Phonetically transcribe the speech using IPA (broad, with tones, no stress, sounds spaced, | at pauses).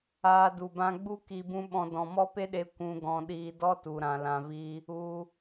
aː˧ d u˨ b ã˧ ɡ͡b u˦ k i˧ b ũ˦ ɓ ɔ̃˧ d ɔ̃˨ m ɔ˦ p e˦ ɗ e˧ kʷ ũ˧ ɡ ɔ̃˧ ɗ iː˧ d ɔ˦ t u˨ ɾ ã˨ l ã˧ v i˦ | u˧